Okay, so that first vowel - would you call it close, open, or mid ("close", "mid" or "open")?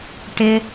close